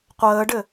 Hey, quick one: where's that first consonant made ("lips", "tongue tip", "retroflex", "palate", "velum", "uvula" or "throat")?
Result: uvula